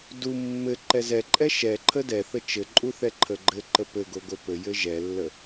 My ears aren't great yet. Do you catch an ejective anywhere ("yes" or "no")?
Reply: yes